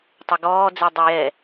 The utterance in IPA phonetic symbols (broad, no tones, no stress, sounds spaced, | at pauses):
tˤ ɐ ɡ ɔː d͡z ɛ dˤ ɜ j ɛ